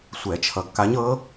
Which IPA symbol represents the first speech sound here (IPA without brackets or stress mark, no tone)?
sʷ